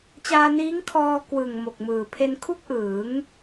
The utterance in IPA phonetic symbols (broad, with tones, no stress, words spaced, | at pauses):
t͡ɕaː˧niː˦˥ŋkʰɔː˧ kwɯ˨˩ŋ mo˨˩k̚mɯː˨˩ pʰe˧nkʰu˥˩k̚ʔɯː˩˦ŋ